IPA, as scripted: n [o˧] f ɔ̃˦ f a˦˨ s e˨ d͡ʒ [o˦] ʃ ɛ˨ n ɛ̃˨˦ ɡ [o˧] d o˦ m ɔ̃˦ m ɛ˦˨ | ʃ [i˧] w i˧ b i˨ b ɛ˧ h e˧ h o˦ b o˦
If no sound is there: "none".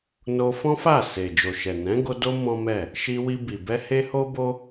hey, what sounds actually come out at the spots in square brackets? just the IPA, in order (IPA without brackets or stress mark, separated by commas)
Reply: o˧, o˨, o˧, i˧